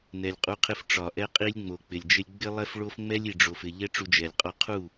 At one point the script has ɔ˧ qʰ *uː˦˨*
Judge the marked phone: incorrect: u˦˨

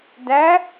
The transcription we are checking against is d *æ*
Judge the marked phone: correct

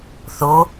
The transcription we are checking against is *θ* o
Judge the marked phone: correct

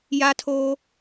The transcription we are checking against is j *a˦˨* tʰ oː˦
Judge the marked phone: incorrect: a˦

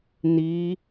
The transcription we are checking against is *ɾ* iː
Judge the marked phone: incorrect: n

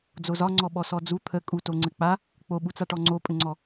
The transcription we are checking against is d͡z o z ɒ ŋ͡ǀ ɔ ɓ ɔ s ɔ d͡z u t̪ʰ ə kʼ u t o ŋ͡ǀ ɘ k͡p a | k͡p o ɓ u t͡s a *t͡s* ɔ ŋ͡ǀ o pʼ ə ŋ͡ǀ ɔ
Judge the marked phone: incorrect: ʈ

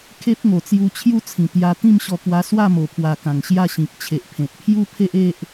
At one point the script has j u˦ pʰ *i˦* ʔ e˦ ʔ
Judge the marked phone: incorrect: e˦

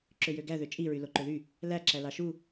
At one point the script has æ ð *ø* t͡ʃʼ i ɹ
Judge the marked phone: correct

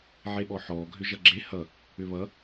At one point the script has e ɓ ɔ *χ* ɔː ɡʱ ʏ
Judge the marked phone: incorrect: ħ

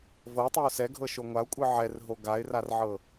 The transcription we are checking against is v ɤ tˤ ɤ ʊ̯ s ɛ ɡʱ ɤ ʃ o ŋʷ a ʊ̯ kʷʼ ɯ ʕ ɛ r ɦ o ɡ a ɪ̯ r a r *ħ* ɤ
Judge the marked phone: incorrect: ʕ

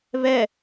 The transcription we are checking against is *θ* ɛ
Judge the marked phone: incorrect: β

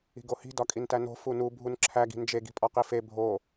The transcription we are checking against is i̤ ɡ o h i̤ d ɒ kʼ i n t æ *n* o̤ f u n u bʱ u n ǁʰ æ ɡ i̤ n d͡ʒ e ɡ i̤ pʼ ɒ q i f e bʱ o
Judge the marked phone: correct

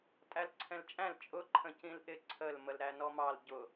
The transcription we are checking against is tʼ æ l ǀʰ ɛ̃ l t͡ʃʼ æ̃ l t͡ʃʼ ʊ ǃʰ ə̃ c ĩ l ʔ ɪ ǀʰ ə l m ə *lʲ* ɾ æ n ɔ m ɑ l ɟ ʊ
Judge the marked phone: incorrect: l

